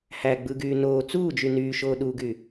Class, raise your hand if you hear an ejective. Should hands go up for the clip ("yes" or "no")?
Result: no